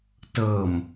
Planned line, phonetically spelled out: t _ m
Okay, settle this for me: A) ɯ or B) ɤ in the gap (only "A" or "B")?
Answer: B